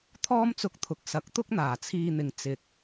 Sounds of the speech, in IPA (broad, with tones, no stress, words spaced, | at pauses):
t̪ʰɔː˥mt͡sʊ˧k̚ t̪ʰʊ˨k̚sɐ˨˥k̚t̪ʊ˥k̚n̪aː˨˩ t͡sʰiː˧n̪ɪ˨ŋ t͡sɪ˨˥k̚